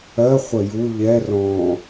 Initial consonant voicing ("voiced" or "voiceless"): voiceless